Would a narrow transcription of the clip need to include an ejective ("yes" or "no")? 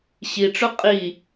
yes